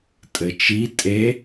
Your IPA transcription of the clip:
tʼɘt͡ʃi tʼe

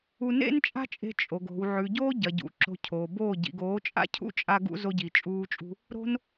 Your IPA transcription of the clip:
u˧nḛ˦nt͡ʃʼa̤˦t͡ʃʼe̤˧ t͡ʃʼo˨ɡ o̤˨w ʕʉ˨ɟoː˦ɟɐ˨ɟṵ˨ ǁo̤˧cʰo˨boː˦˨ ɟḭ˨ɡoː˨˦t͡ʃʼa̰˦cʰṵ˦ t͡ʃʼa˧ɡṵ˧ zo˧ɟi˨t͡ʃʼuː˧t͡ʃʼṳ˧ | ɾo̤˦n

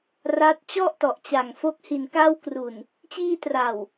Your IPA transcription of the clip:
ra˦˥t̚ t͡ɕɔ˥˩ʔtɔ˨˩ʔt͡ɕa˨˩ŋfo˦˥k̚ hi˨˩nka˦˥wkru˨˩n | t͡ɕiː˧tra˨˩w

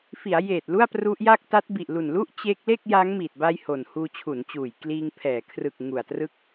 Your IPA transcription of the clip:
fi˩˦a̯jeː˨˩t̚ lu˥˩a̯pru˦˥ʔja˥˩k̚ ta˦˥t̚bi˨˩ʔlu˨˩nlu˥˩ʔ t͡ɕe˦˥k̚le˥˩k̚ ja˦˥ŋmiː˨˩t̚ba˧j ho˨˩n huː˧t͡ɕʰu˩˦nt͡ɕuː˨˩j kliː˧ŋpʰɛː˩˦ kʰrɯ˨˩k̚ ŋu˨˩a̯trɯ˦˥k̚

